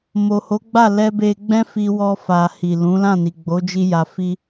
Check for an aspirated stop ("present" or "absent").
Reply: absent